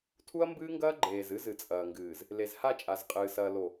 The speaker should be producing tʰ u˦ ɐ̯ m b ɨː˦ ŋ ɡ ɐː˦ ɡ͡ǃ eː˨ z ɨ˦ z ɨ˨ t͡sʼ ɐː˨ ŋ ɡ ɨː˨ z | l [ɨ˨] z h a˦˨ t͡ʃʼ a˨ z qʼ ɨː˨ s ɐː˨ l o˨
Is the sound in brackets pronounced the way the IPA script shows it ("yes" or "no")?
no